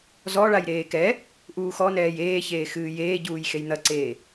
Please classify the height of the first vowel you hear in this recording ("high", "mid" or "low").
mid